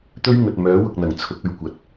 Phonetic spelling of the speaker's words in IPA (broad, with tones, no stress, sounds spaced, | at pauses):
t̪ ɵ˥ ɥ ŋ ɵ˨ t̚ m œː˨˥ w ʊ˨ k̚ n̪ ɐ˨˩ ŋ t͡sʰ ʊ˨˥ k̚ ɵ˨ ɥ kʷ ɐ˨˥ t̚